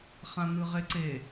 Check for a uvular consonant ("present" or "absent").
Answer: present